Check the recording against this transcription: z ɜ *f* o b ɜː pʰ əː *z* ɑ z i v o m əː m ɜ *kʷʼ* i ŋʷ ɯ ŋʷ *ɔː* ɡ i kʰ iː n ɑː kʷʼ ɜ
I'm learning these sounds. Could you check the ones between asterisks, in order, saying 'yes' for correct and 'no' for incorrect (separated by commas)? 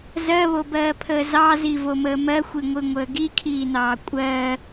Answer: no, yes, no, no